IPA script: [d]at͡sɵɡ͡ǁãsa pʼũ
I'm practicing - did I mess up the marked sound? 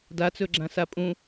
no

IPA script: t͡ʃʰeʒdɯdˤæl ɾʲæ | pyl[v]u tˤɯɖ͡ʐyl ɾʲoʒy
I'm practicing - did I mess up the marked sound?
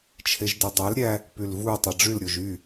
no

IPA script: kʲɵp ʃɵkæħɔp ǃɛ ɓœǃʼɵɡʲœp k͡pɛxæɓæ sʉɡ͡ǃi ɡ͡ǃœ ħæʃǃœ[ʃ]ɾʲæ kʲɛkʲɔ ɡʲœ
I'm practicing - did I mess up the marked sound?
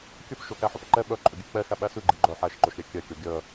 no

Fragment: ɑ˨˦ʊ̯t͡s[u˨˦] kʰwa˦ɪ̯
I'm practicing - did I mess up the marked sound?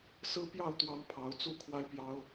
yes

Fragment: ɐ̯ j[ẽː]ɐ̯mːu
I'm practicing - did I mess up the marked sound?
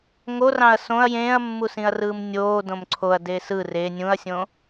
no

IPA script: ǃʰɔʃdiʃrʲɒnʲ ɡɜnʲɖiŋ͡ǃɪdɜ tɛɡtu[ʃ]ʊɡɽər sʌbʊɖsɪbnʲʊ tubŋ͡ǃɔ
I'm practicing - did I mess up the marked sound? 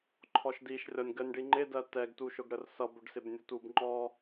no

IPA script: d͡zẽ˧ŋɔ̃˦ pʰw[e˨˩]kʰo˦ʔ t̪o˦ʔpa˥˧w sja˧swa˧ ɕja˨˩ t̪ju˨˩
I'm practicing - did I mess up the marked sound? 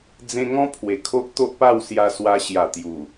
no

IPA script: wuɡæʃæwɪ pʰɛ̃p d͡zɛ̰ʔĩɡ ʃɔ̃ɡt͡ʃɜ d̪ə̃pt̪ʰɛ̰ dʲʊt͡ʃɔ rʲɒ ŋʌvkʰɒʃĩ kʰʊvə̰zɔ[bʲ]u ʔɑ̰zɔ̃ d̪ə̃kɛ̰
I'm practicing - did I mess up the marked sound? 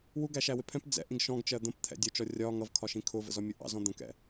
yes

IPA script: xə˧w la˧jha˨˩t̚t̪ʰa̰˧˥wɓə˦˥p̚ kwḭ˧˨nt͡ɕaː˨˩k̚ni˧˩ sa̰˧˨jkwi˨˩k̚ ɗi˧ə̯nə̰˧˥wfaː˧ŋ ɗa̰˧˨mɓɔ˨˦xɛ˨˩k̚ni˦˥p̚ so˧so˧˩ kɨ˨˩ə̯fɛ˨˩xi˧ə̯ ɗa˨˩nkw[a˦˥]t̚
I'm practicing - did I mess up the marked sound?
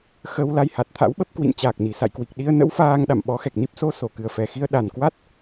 no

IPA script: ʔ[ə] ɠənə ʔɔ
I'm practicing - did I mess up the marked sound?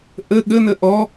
no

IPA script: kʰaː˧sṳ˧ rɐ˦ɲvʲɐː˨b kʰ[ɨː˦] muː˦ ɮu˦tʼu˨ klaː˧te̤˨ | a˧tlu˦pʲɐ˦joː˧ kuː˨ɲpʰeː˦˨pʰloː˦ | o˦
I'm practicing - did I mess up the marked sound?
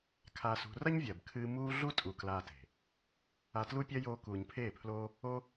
no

